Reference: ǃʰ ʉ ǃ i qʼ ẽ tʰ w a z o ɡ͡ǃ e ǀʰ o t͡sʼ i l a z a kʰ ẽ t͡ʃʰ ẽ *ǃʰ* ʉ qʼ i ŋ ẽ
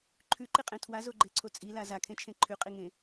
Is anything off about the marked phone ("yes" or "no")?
no